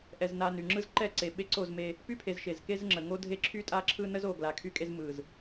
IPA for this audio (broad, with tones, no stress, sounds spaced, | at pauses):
ʔ ɛ˨ z n a˨ n y˨ ŋ͡ǁ ɯ˦ z ǃ ɛ˦˨ ǀ e˨ ɓ e˦ ǀ o˦˨ z m e˦ | p y˦ pʰ e˨ z ʃ e˨ z k e˦ z ŋ͡ǁ ə˨ ŋ o˦ dʱ e˦ ǁʰ y˦ tʼ a˦˨ ǁʰ ɯ˦ n ə˦ z o˨ ɡ l a˨ kʰ y˦ kʼ e˦ z m ɯ˨ z